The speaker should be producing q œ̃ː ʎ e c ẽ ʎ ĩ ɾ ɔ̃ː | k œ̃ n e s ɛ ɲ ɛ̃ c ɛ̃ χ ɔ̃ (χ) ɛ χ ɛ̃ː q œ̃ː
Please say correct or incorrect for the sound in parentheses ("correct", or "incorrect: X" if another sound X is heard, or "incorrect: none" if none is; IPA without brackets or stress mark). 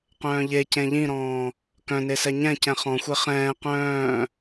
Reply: incorrect: xʷ